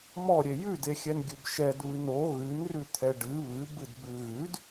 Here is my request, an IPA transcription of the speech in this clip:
mɔ ɾʲejʉdexʲɛn ɡʲʉbʃɛd βɨno ɣʉnrʉ t̪ʰɛɖɨ βɨb ɨdbʉɣʉd

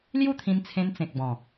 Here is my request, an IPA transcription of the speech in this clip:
lju˥˧t̪ʰĩ˧nt͡sʰẽ˧n t͡sẽ˨k̚bɔ̃˨˩

